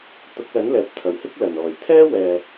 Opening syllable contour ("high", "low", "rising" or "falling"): rising